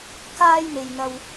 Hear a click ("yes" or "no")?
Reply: no